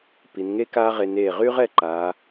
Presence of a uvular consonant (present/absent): present